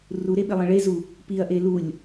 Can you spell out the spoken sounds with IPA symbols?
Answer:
r u ɾ e ɓ ɪ lˠ ə̃ ɭ e z u | p i ɐ̯ ʔ e l u lʲ

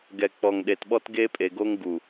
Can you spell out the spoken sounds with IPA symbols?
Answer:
ɡ ɛ˨ k͡p ɔ˨ ŋ ɗ e˨ t ɓ ɔ˦ t ɡ e˦ pʼ e˨ ɡ o˦ ŋ ɡ u˨

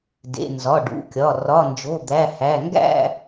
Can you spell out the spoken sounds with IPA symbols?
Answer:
d ḛ˩˧˩ n z ɒ˩˧˩ ɖ ṵ˩˧˩ kʲ ɒ˩˧˩ r ɒ˩˧˩ n d͡ʒ o˩˧˩ d̪ æ˩˧˩ h æ˩˧˩ ŋ ɡ æ̰˥˧

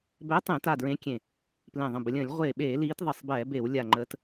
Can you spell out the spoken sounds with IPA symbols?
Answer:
b ɛ˨˦ tˤ ẽ˧˩˧ t a˧˩ d ɹ ẽ˨˦ kʲ ẽ˧˩ | p l ẽ˧˩ ðˤ ə̃˧˩ b ə˨˦ lʲ ə̃ː˧˩˧ lʲ ʁʷ eː˧˩ ɓ eː˧˩˧ l iː˨˦ t ðˤ ə˧˩ sˤ b ɛː˧˩˧ b e˧˩˧ w lʲ a˧˩ ŋ͡ǃ əː˨˦ t

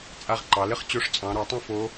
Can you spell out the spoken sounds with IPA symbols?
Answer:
t͡sʼ a˦˨ ʁ ǃ ɑ˩˧ l ɘ˥ χ t͡ɕ o˧˥ ʂ t͡sʼ ɑ̃˩˧ ɾ ɔ˩˧ tˤ ɐ̃˥ f o˧˥

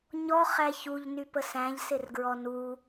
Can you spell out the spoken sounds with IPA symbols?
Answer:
ɲ ɔ χ æ ç u ʎ n y p ə s æ̃ ʎ s ɪ r ɡ ɹ ɔ n u

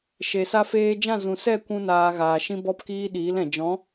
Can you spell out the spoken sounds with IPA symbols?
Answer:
ʃ e˨ s a˧ f eː˧ d͡ʒ ã˦˨ z ũ˨ s ɛ˦˨ kʷ ũ˦ n aː˧ ɣ aː˨ ʃ ĩ˧ b ɔ˧ p k iː˧ ɗ iː˨˦ l ɛ̃˨ d͡ʒ ɔ̃˨˦

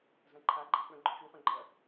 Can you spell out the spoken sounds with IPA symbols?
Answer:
z ɐ̃ ǃʰ a ɡ͡ǃ a k͡p œ̃ ɡ͡ǃ œ̃ ʃ u χ œ̃ ɡ͡ǃ ɐ

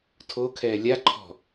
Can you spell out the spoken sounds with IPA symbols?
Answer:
tʰ o kʰ ɛː lʲ a ǃʰ ɔ̤

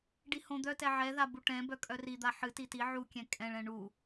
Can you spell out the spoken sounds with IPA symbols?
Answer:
ɖ i h õ d̪ œ t ɛ ʕ ɛ ð a b u ʈ ɛ̃ b œ kʼ œ r i d̪ a ħ ɨ t i t i ʕ u kʲ ɛ̃ kʼ ɛ̃ ɭ ɛ̃ ɳ u

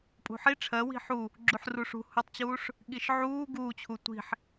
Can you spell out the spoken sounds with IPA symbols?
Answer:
pʼ ṳ ħ i ʈ͡ʂʰ ɜ w i̤ ħ u | ɡ͡ǁ u ħ r u ʂ ṳ h u tˤ t͡ɕ uː ʂ | ɠ i ʃ ʕ uː ɡ uː t͡ɕʰ u tʷ i̤ ħ

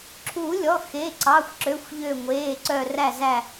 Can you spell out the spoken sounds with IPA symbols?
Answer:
ǁʰ u˨˩˦ lʲ ɔ˩˧˩ x e˩˧˩ ǀ ɑ˩˧˩ xʷ ǁ ø˩˧˩ xʷ ʎ ø˧˩ ŋʷ eː˩˧˩ ǀ œ˧˩ r æ˧˩ z æ˧˩

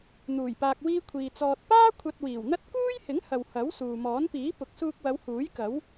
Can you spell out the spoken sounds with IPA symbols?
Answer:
n̪ uː˨˩ j p aː˧ k̚ w iː˥ kʷʰ iː˨ t͡s ɔː˨ t̚ p aː˥ kʷʰ ɐ˧ t̚ w iː˨˩ w n̪ ɐ˥ t̚ k uː˥ j h ɪ˨˥ ŋ h ɐ˨ w h ɐ˨˥ w s uː˨ m ɔː˨˥ n p iː˨˥ p ʊ˨˥ k̚ s uː˧ k̚ w ɐ˨˧ w h uː˨˥ j k ɐ˨˥ w

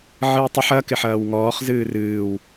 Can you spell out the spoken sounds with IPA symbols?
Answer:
ʕ ɨ w tˤ ə ħ ɐ k ɪ ħ ɐː w ŋ ɔː χ z ɨː r ɨː w

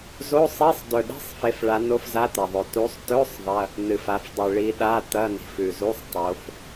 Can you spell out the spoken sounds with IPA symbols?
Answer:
z o˧˥˧ sˤ i˧˥˧ sˤ d ɵ˨˩ ɗ e̤˧˥˧ sˤ f e˨˦ f ɭ a˨˦ n o˧˥˧ f z a˧˥˧ t̪ ɐ˨˩ ðˤ ɵ˨˩ t u˨˦ sˤ t ɵ˧˥˧ sˤ ðˤ ɐ˧˥˧ | n ɨ˨˩ f a˨˦ f dˤ ɨ˨˩ ɭ i˨˦ ɗ a˧˥˧ t̪ ɐ˧˥˧ n i̤˨˩ f ʉ˨˩ z u˧˥˧ sˤ tˤ o˨˦ f

